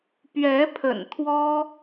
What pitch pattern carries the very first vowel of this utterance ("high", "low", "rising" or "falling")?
rising